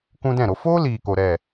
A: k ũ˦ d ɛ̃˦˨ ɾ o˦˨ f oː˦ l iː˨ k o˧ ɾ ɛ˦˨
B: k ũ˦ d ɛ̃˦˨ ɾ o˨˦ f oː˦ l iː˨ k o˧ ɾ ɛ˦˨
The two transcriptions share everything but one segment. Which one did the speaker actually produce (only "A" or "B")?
B